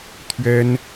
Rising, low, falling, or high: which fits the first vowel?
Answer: high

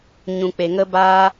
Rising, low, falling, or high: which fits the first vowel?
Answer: low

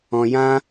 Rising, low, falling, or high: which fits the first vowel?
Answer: high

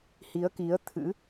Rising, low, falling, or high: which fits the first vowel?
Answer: rising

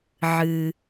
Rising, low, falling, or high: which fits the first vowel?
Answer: low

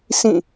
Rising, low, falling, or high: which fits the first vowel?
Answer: falling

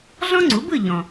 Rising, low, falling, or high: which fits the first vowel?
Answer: high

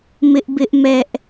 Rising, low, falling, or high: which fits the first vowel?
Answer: high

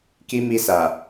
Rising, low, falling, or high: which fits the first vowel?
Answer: high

